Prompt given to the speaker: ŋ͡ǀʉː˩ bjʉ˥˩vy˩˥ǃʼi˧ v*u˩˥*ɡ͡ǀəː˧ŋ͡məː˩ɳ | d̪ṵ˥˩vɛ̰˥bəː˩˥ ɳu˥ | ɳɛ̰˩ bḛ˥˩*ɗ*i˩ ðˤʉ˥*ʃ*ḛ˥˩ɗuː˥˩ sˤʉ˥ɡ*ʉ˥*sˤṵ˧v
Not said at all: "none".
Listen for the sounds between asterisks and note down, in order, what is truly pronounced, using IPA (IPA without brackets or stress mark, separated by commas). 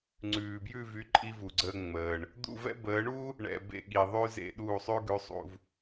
u˩, ɠ, z, ʉ˩˥